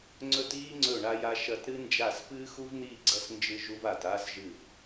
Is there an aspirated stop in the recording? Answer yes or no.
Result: no